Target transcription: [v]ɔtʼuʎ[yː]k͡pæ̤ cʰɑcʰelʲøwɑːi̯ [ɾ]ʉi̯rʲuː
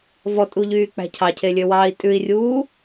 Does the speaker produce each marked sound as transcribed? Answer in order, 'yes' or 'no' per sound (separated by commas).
yes, yes, no